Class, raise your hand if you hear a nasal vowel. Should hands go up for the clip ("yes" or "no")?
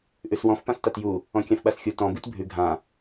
yes